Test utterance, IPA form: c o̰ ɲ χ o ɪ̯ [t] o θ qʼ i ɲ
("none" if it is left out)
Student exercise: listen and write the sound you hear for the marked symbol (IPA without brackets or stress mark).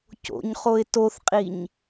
t